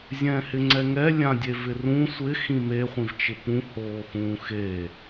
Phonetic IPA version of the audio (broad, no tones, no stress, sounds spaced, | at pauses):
zʲ ɛ̃ː h ɪ ŋ͡ǀ ɛ ŋ ɛ lʲ ã dʲ e v ɪ r ũ sʷ ɪ x ĩ m e χʷ ĩ v t͡ʃ ɪ p ũ h oː x ũː x e